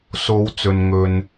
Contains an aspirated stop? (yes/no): no